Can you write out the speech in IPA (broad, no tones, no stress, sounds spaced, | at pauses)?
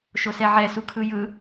ʃ o s ɛ ʕ ɛ s u kʰ ɯ j ɯ